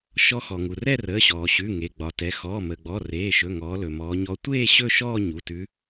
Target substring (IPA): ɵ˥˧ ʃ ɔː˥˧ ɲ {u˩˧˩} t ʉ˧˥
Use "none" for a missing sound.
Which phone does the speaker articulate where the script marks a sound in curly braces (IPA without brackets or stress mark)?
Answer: u˩˧˩